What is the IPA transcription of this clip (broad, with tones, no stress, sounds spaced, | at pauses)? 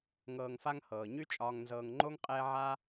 ŋ ɤː˨ ŋ f a˦ ŋ h ɤː˩ ɲ y˥ t͡ʃʼ ɒː˨ ŋ n z ɤː˨ ŋ ŋ͡ǃ o˥ ŋ qʼ ɛː˦ ʕ a˥